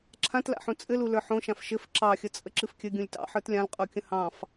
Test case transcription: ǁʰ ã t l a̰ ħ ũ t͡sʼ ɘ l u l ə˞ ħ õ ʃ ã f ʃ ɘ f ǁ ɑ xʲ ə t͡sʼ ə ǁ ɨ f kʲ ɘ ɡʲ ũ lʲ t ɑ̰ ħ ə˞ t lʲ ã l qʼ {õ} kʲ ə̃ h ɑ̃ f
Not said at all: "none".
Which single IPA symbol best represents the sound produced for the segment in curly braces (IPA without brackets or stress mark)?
o